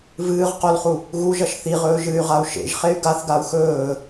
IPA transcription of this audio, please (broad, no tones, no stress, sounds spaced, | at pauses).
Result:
v ɨː ʁ q o l χ u | ɣ u ʒ ɐ ʃ θ i ʁ ɵː ʒ ɨ y̯ ʁ a u̯ ʃ ḛ ʒ χ e y̯ ɡ a θ ɡ a u̯ x ɵː